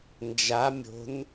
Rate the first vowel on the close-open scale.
open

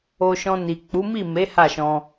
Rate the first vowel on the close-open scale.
mid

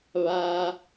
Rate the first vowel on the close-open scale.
open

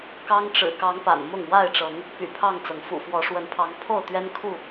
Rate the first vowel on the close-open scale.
open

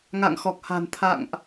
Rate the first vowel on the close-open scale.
open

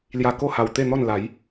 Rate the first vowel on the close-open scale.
open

